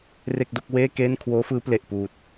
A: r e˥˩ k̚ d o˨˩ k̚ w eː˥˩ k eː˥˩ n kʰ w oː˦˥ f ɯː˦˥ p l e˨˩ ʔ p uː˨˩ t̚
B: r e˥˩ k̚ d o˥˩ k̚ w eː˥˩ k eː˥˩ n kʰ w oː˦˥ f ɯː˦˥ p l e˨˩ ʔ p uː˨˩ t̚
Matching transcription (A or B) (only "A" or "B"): B